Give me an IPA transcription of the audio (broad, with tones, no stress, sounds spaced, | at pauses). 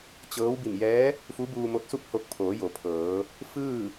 t͡ɕ ɤː˧˥ w b i˧˩ m j ɛː˧˥ | f u˧˥ b uː˧ m o˧˥ t̚ s u˥˨ p̚ h o˧ k̚ pʰ oː˩˧ j o˩˧ pʰ ɤː˩˧ | f ɯː˥˨